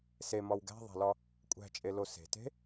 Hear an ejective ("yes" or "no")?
yes